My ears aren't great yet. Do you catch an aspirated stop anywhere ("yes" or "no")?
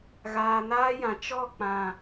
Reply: no